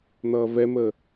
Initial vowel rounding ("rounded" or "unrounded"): unrounded